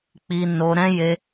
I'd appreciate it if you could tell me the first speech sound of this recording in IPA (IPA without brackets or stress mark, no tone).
k͡p